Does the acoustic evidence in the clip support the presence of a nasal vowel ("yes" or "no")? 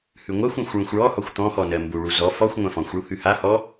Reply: yes